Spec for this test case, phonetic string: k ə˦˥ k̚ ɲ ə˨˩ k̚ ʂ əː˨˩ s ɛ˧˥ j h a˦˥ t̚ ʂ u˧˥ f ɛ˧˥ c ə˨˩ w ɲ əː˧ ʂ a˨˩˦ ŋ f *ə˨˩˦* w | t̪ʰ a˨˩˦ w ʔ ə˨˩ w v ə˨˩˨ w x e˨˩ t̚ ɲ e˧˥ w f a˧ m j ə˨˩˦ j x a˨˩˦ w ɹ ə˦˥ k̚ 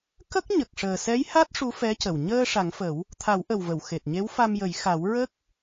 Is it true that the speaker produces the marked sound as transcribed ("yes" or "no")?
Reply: yes